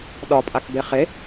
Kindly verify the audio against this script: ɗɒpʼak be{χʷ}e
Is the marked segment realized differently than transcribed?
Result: yes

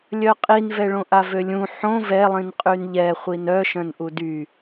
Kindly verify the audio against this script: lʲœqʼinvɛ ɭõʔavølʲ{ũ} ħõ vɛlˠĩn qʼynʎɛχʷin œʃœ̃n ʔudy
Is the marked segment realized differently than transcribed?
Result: no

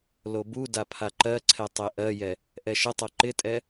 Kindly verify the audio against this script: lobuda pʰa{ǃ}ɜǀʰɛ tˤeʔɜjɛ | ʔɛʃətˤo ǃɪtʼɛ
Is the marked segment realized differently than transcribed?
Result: no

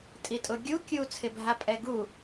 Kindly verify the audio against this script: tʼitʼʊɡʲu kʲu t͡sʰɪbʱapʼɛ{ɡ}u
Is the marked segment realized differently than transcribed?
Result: no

